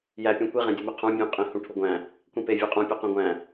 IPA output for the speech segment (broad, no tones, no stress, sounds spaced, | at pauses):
j æ pʲ ũ kʷ i ʁ ẽ dʲ o m i qʰ ũ bʲ õ qʼ ĩ h ũ ʈʰ u ɡʷ æ̃ | kʷ ĩ p e vʲ æ qʼ ũ pʲ u q ẽ ɡʷ æ̃